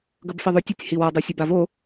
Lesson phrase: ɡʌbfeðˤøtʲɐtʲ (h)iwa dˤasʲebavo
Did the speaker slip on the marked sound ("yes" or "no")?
no